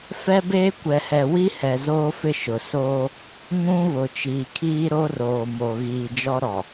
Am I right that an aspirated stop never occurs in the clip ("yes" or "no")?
no